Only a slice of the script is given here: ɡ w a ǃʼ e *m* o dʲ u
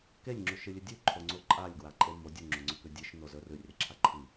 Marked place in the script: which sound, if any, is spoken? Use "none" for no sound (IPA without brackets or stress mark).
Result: m